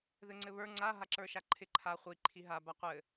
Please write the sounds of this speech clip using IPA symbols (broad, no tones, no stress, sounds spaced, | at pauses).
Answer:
ð ɘ ŋ͡ǀ ɘ β ə˞ ŋ͡ǀ a ɦ a ǁ ə˞ ʃ a ǃʰ ɪ ǃʰ a χʷ i ǃʰ i ɦ a b a qʷ ɘ